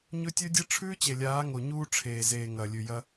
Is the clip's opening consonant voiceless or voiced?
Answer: voiced